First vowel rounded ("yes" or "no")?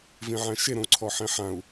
no